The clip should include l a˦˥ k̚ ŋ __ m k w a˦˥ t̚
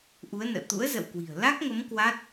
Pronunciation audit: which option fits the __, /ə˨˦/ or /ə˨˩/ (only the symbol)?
ə˨˦